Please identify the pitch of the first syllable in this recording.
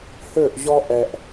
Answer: falling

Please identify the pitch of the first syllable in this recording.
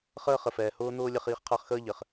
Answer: high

